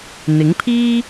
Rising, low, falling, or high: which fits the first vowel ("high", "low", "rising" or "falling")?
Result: rising